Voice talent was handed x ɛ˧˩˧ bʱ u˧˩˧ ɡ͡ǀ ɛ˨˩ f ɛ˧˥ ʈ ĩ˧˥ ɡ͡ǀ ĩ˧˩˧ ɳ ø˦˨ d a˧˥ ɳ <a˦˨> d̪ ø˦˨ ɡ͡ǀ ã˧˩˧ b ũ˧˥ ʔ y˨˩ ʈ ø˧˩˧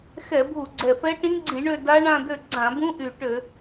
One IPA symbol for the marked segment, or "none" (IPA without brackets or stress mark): ã˦˨